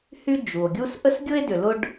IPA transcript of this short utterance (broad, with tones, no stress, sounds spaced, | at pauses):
h y˥ d͡ʒ u˩ o̯ ɡʲ u˥ s ʔ ə˥ s ɡʲ ʊ˥ e̯ d ʏ˨ l ʊ˥ ɖ